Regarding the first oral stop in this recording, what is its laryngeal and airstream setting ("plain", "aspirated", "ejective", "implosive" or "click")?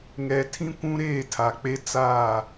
aspirated